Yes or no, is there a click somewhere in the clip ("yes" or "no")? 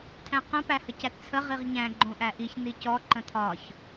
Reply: yes